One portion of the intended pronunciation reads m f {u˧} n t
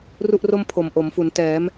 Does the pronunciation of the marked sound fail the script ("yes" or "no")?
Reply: yes